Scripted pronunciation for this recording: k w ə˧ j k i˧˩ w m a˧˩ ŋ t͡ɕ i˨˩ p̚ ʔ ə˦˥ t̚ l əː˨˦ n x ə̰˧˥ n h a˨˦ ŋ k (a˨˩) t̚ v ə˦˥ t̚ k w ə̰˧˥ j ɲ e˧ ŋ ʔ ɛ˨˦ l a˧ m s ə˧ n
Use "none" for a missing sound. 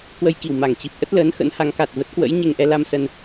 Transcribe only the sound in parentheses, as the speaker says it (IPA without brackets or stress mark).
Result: a˨˩